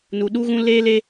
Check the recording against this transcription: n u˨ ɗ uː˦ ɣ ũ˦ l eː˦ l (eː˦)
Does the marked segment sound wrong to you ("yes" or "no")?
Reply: yes